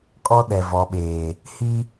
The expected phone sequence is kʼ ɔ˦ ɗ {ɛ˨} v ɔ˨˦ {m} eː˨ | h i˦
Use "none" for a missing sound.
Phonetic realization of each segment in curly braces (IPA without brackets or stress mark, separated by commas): ɛ˨, ɓ